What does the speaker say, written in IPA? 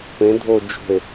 p ẽ dʱ o d͡ʒ o̤ e̯

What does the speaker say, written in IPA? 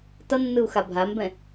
t ʌ nː ɯ u̯ x a bʱ a m b ɛ̃

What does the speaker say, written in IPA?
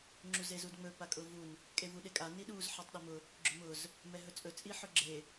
ŋ͡ǁ u z e z u d ŋ͡m ɵ p a kʼ ʊ v u n | kʼ e v u ɗ e kʼ a n i ɗ u z ħ a tˤ ɗ ɛ m ʊ | ɡ͡ǁ ʊ m ʊ z | m ɛ ɦ ɵ t͡sʼ ɵ t͡sʼ i ħ ʊ ɡ͡ǁ e

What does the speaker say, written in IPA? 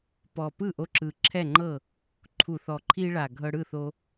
p ɔ˨˩ p ɯ˥˩ ʔ o˧ ǁ ɯ˨˩ ǁʰ ɛ˥˩ ŋ͡ǃ ɤ˥˩ | ǃʰ u˨˩ θ ɔ˨˩ ǃʰ i˧ ɭ a˨˩ ɡʱ ɤ˧ ɽ ɯ˥˩ θ o˧

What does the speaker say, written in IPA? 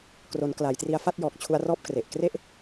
k r o˩˦ n k l a˩˦ j t r i˧ a̯ f a˥˩ t̚ j ɔː˨˩ k̚ t͡ɕʰ u˧ a̯ r ɔː˥˩ p̚ k r e˨˩ ʔ k r e˥˩ ʔ

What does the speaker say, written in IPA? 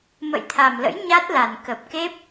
m ə̰˧˨ j t̪ʰ a˨˩ m l ə̰˧˥ j ɲ a˦˥ t̚ l a˨˩ n k ə˨˩ p̚ k e˦˥ p̚

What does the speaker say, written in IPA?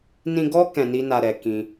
n ĩ˧ ɡ ɔ˦ k ɛ̃˧ n i˦ n a˧ ɾ ɛ˨ k ĩ˧

